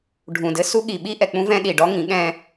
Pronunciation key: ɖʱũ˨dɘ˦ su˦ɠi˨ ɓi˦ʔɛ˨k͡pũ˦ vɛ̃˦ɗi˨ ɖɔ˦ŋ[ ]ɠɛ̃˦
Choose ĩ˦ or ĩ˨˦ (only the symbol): ĩ˨˦